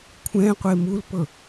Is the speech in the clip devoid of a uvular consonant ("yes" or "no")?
no